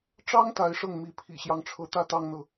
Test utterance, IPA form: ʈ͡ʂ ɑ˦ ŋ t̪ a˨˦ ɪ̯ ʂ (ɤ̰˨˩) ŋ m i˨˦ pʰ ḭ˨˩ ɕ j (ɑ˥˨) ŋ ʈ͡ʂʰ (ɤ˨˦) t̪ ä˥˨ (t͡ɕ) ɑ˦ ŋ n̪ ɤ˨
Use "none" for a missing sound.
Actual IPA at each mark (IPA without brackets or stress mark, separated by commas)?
ɤ˥˨, ɑ˦, ɤ˨˦, t̪